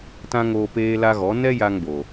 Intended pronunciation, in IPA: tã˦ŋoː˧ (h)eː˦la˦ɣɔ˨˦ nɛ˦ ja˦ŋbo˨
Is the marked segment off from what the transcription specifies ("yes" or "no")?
yes